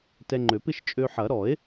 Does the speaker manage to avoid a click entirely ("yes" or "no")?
no